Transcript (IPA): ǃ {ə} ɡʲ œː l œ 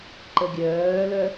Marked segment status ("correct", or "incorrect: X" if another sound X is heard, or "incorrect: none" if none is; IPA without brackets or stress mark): correct